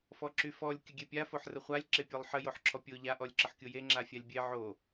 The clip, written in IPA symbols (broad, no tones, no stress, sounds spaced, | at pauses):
f ɔ ǁ y f ɔ lʲ kʲ ə ɡʲ e pʲ a f o ħ r ə χʷ a lʲ ǁ e pʲ ɔ lˠ ħ ə j o ħ ǁʰ ɔ pʲ o ʎ a ʔ ɔ lʲ ǁ ə ħ kʲ o j e ŋ͡ǁ a fʲ a lʲ bʲ e ʕ o